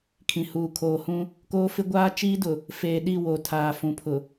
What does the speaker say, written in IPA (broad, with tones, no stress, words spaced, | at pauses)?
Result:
kʰĩ˨ huː˨kʰoː˨hũ˦ | koː˦fɪ˦ ɡʷaː˦t͡ʃiː˦ dʊ˨ | feː˨ɗi˦˨ wo˨tʰaː˨ fũ˨pʰʊ˨